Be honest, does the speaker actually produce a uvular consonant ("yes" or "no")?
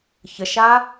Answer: no